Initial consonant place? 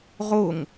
uvular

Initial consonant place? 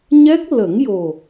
palatal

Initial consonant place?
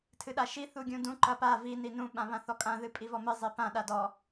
alveolar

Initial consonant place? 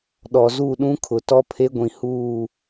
alveolar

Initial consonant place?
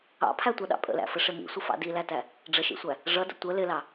labial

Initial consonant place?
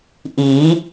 glottal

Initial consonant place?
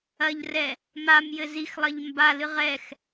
palatal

